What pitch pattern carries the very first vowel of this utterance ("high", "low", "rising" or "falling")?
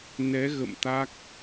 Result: rising